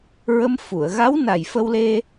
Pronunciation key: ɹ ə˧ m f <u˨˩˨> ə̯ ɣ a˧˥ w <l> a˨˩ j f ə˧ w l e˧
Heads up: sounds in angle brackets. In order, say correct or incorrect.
correct, incorrect

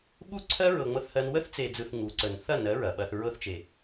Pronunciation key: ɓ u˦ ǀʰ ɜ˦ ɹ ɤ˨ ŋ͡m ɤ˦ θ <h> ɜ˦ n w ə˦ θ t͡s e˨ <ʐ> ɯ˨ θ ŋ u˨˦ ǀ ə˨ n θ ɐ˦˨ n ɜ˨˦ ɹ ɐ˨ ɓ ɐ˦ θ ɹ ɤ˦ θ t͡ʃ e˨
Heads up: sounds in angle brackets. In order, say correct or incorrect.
correct, incorrect

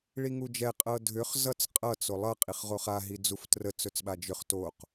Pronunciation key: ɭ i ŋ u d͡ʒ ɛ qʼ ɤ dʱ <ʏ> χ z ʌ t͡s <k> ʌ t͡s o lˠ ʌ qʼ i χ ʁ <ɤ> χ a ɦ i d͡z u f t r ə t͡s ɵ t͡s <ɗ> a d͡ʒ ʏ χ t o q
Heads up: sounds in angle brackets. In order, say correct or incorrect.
correct, incorrect, incorrect, incorrect

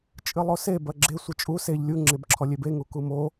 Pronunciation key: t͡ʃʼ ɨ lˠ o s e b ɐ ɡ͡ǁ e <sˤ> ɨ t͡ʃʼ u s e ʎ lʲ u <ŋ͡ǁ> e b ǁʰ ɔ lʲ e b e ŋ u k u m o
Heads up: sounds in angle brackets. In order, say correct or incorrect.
incorrect, correct

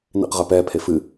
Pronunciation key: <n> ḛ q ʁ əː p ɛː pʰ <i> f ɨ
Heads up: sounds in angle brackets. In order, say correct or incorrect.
correct, incorrect

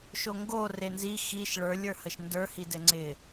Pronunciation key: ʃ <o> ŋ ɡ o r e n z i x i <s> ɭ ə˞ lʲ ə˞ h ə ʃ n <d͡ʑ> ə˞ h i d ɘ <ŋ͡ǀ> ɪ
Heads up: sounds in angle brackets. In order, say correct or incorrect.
correct, incorrect, incorrect, correct

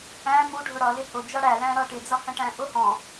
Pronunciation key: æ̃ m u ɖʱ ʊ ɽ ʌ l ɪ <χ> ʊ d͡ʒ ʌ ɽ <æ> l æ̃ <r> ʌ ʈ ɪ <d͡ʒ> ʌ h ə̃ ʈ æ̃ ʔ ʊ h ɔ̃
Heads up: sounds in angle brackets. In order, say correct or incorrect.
incorrect, correct, incorrect, incorrect

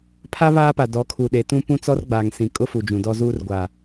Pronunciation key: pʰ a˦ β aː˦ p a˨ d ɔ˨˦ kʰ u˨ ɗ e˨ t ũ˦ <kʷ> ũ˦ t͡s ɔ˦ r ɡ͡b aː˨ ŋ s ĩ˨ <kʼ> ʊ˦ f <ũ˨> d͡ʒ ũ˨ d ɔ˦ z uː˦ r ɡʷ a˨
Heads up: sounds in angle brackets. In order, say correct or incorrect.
incorrect, correct, incorrect

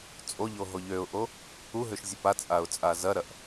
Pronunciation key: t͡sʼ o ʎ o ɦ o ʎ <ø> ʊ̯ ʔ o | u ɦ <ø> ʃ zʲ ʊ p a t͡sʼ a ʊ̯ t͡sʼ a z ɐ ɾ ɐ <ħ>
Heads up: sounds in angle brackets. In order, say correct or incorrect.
correct, correct, incorrect

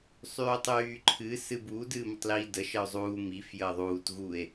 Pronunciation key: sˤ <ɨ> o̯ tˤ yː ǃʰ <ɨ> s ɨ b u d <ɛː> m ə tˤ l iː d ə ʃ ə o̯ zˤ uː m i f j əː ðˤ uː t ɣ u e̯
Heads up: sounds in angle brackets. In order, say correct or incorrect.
incorrect, correct, incorrect

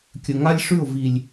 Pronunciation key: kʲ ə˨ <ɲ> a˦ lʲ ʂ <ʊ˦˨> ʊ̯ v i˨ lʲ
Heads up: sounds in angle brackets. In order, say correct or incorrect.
incorrect, incorrect

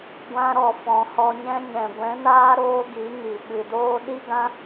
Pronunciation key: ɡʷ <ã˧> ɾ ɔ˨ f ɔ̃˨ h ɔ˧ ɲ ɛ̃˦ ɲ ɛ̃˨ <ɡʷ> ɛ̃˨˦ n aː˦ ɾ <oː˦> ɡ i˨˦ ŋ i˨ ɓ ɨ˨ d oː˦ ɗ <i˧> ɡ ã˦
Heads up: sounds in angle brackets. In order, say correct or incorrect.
correct, correct, correct, incorrect

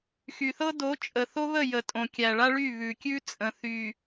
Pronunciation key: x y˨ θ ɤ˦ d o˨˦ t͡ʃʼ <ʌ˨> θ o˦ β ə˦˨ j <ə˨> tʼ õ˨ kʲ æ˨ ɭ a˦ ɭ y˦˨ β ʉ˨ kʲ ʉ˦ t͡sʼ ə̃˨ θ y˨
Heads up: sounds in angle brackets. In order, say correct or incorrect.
incorrect, correct

